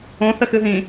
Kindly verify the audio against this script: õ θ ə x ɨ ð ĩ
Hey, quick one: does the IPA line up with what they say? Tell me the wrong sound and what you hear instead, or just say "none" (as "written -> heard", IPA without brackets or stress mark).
none